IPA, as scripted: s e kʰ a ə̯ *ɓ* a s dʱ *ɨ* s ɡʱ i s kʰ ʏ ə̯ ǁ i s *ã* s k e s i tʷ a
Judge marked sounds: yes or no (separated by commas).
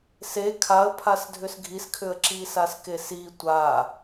no, no, no